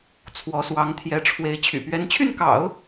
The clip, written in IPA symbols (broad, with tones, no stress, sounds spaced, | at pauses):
t͡sʰ w ɔ˧˥ s w ɑ˧˥ ŋ t̪ʰ j ɛ˧˥ ʈ͡ʂʰ w e˧˥ ɪ̯ t͡ɕʰ y̰˨˩ p ɥ ɛ˧˥ n t͡ɕʰ y˥˩ n k ɑ̰˨˩˦ ʊ̯